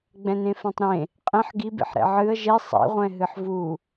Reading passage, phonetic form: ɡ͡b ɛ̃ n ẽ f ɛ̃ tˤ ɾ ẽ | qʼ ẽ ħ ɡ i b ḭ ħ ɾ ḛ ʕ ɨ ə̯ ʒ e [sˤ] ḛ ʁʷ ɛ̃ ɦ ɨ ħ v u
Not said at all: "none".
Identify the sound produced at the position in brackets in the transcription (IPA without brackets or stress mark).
sˤ